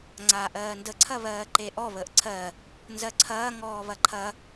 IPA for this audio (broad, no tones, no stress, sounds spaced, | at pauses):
ŋ͡ǀ aː ʔ ɜː n d ə ǀʰ ɐ β ɜː ǃ e ʔ ɔ β əː ʔ ǀʰ ɜ | n z ɜ ǀʰ ɐː ŋ ɔː β ɐ ǃʰ ɐ